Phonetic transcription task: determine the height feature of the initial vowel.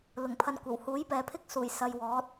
high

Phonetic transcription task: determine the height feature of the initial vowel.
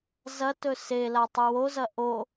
low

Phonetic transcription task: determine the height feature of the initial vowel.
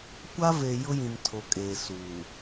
low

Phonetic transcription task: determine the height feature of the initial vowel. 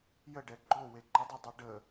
mid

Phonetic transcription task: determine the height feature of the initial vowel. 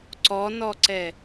mid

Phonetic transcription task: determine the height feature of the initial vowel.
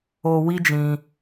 mid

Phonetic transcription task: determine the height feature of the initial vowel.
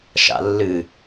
low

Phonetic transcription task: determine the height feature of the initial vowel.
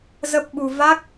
mid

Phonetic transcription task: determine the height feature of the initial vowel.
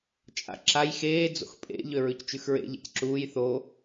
low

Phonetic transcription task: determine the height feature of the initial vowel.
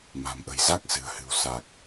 low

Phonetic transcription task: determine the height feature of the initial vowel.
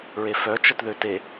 mid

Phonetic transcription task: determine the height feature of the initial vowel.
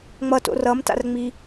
mid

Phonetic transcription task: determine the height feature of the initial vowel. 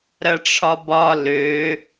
low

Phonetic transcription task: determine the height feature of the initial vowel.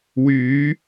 high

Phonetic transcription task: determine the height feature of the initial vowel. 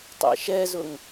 mid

